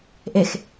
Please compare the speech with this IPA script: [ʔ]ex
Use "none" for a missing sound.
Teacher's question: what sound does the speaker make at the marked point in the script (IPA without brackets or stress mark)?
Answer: ʔ